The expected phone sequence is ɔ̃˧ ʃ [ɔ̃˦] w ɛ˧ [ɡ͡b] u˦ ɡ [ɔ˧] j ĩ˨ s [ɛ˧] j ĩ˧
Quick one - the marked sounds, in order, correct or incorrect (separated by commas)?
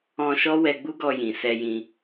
incorrect, correct, correct, correct